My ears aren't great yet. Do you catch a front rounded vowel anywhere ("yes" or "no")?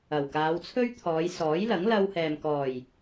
no